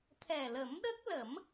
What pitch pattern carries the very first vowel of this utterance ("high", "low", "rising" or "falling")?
low